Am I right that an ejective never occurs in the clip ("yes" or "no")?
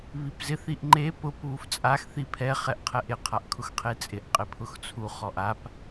no